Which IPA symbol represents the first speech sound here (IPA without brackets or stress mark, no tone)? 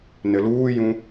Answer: n